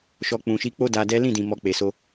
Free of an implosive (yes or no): yes